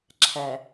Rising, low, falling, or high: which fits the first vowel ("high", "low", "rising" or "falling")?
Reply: low